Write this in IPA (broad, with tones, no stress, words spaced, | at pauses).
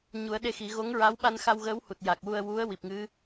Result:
ɲu˨˩˦ə̯ɗe˧xi˨˩˦ ɣo˧˥ŋɹa˧˥w ɓa˧nxa˧wɣəː˧˥w hu˨˩t̚ja˨˩k̚wu˧ə̯ wu˧˥ə̯ wi˨˩p̚ŋɨ˧˥